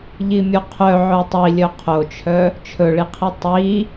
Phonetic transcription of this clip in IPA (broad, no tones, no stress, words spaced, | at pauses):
ʎimʲoqʰœ ʕœtˤi lʲœqʰot͡ʃʰœ | t͡ʃʰɵɭiqʰi tˤi